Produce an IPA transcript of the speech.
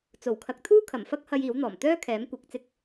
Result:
t͡s o˨˩ w kʰ ɐ˨ k̚ t̪ʰ uː˥ kʰ ɐ˨˩ m f ɐ˥ k̚ h ɐ˧ j iː˨˥ w n̪ ɔː˨˩ m t̪ œː˥ kʰ ɛː˨˥ m kʷ ɪ˨˥ k̚ t͡s ɪ˧ k̚

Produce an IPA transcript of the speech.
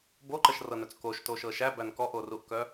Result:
b o ǃ ə ʃ r ɤ n œ t͡s k o ʃ t o ʃ ɤ ʃ æ b æ n k ɔ ʔ o r u ʔ k œ

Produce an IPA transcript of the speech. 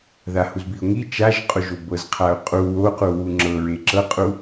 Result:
ð a h u z b i ʊ̯ ŋ i t͡ʃ a ʒ qʼ o ʒ o b ɤ z qʰ a ʊ̯ qʼ u w o q u w u ŋ͡ǁ ɤ ɹ e ǁ ɤ qʼ u

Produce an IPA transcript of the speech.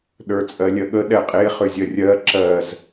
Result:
ɗ ə˞ t͡sʼ ɜ lʲ ɜ ɠ ə ɗ ɛ qʼ e χ ʏ zʲ ɜ rʲ ɜ ǁ ɜ z

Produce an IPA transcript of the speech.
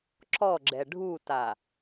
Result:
ǁ ɔ ɡ͡ǁ ɛ ɖʱ u t a

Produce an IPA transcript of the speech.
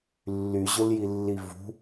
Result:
lː y ʑ ʊ l j i lː i v ṳ

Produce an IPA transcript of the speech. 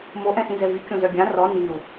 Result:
m o ʔ ɛ̃ s ĩ z ɛ v y kʲ õ z œ ɡʲ ã r ɔ n i u̯

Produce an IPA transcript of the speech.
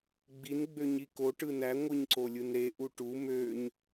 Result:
ɡ͡b i n ɡ͡b ø ɲ i k o ʈ ɯ n æ ŋʷ ɯ ɲ ǀ o lʲ ɯ n ɾ e ʔ u ʈ u m ø ɲ

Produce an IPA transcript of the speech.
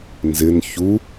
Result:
n z ɪ n ç u

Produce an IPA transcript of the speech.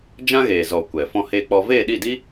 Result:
d͡ʒ ã˦ ɣ eː˨ z ɔ˨ kʷ ɛ˨ f ɔ̃˧ h eː˧ k͡p ɔ˧ v eː˦˨ ɗ i˦˨ d i˦

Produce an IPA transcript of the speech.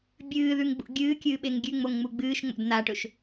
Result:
bʲ ɨː ð ʉ ŋ ɡ͡b ṵ ɡʲ ɨː kʲ ɨː ɓ e ŋ ɡʲ ʉ ŋ͡m o ŋ ŋ͡m u ɡ͡b ɨː ʃ ŋ͡m o̰ d n̪ a ʈ ɵ ʃ

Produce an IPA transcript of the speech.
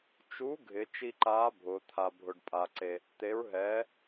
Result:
t͡ʃ u˨˥ ɡʱ ɪ˩˧ t͡ʃ i˧ ǃ aː˨˥ bʱ ʊː˩˧ t̪ʰ a˧ bʱ ʊ˧ ɖ pʼ a˧ ǀ e˧ | t̪ e˨˥ ɹ ɦ ɛː˨˥

